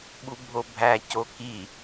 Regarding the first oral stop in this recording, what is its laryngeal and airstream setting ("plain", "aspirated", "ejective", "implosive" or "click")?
implosive